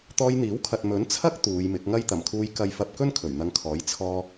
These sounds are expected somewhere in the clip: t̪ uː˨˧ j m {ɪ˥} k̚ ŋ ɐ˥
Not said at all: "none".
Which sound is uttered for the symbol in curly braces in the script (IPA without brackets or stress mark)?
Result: ɪ˨˥